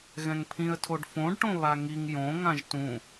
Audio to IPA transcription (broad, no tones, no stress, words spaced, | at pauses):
ɣɛ̃ŋpʰĩə̯tʰoɖ fõɖʈõ βaŋiŋ jõ ŋãʒtũ